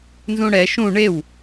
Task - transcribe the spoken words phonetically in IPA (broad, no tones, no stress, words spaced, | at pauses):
nzũɽɛ ʃũ ɳew